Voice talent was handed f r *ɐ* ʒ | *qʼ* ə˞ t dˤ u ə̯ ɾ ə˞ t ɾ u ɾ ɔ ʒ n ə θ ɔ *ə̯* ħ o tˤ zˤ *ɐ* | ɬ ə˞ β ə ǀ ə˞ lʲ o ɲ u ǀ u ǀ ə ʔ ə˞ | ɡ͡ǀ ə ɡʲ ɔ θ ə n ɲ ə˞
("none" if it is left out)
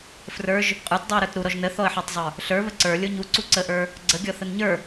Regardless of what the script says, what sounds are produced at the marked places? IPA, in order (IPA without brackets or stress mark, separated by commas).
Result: ə˞, qʼ, ə̯, ə˞